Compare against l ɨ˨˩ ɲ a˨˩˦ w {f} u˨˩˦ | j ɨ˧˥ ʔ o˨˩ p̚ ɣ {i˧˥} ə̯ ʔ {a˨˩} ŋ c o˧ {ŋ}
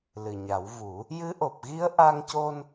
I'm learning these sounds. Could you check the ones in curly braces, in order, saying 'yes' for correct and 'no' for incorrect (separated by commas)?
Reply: no, yes, no, no